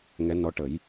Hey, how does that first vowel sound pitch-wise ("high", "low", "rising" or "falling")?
rising